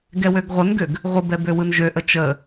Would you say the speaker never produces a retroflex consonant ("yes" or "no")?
yes